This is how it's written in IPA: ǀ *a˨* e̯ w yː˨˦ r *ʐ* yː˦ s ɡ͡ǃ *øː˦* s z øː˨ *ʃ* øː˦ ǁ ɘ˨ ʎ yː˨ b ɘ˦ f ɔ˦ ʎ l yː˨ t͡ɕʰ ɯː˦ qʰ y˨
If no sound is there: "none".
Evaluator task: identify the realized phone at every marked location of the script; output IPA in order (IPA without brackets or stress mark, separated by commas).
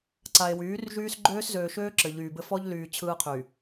a˨, ʒ, øː˦, ʃ